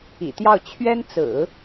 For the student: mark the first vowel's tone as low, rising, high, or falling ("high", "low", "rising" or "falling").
low